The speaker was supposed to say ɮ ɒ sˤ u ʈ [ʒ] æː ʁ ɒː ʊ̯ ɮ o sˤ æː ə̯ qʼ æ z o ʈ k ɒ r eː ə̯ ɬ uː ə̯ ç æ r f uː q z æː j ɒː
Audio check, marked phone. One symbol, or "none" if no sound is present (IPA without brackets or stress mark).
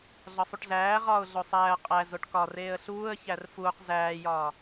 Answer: ɮ